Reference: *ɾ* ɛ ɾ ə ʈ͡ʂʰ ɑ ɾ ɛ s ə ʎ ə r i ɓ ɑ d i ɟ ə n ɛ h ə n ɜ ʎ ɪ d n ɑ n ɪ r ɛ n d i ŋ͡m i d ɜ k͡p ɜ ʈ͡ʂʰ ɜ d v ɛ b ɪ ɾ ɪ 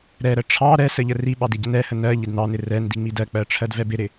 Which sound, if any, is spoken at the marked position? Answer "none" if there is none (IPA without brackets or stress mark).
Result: ɾ